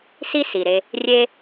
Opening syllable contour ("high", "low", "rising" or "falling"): high